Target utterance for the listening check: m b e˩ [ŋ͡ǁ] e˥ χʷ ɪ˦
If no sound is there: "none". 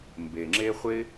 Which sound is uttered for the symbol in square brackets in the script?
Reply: ŋ͡ǁ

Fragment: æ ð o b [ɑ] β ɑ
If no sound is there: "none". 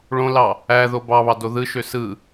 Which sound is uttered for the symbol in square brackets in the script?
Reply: ɑ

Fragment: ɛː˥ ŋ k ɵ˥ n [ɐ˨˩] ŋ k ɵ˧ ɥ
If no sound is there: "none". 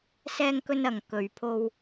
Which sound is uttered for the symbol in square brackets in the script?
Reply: ɐ˧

